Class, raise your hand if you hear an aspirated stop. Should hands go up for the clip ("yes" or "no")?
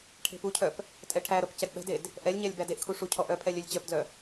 yes